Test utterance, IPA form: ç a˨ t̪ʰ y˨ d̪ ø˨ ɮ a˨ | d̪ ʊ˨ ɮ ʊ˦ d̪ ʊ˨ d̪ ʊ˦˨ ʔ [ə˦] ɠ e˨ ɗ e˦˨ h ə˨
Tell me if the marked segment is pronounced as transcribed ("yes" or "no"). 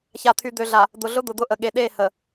no